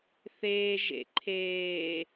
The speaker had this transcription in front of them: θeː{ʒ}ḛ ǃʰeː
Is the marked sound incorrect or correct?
correct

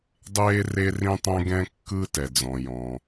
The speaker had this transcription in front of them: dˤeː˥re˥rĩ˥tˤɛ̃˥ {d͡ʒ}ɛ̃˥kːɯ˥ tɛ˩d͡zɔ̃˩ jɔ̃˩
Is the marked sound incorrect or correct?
incorrect: ɡ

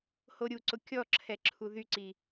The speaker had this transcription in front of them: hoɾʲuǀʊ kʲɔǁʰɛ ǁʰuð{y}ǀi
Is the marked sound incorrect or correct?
correct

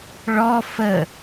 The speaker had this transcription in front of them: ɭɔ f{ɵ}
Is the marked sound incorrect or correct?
incorrect: ə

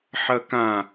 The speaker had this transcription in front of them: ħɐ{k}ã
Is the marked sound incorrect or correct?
correct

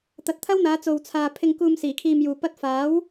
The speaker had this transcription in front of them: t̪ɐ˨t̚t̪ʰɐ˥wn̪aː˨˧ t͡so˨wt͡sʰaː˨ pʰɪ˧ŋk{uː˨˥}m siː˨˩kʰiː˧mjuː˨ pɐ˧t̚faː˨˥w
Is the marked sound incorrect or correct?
incorrect: uː˧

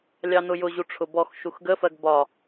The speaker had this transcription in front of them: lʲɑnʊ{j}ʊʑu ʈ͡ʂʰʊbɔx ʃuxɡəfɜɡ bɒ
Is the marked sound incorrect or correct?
correct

